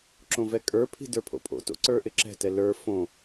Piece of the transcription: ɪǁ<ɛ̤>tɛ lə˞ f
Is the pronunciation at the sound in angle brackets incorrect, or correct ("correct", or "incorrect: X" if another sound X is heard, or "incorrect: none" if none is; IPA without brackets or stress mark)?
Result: correct